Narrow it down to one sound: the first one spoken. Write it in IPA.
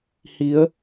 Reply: h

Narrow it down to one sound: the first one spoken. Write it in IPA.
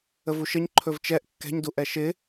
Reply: ə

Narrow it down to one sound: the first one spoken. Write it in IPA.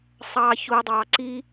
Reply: sˤ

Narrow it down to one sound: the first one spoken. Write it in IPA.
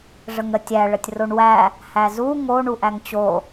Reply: ʐ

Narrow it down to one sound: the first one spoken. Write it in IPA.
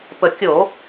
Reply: p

